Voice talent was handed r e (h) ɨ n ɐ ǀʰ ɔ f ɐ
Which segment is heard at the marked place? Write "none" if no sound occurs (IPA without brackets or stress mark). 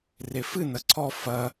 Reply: f